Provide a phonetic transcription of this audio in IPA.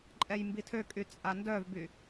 ǃʼ ɛ j m b i tʰ ø kʼ y t͡sʼ a n d œ v b y

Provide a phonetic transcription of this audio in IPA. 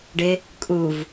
ɖ ɪ | kʼ u v

